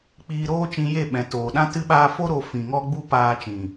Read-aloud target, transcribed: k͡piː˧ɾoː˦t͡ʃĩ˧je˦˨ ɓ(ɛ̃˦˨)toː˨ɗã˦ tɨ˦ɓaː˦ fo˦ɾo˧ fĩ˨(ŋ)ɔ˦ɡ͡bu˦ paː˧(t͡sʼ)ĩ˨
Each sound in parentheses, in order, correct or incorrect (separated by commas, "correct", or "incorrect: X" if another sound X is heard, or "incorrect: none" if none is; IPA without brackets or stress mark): incorrect: ɛ̃˨, correct, incorrect: t͡ʃ